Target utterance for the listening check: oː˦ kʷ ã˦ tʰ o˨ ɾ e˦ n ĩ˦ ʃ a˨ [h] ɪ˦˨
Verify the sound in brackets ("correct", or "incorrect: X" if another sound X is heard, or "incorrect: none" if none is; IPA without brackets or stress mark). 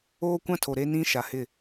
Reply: correct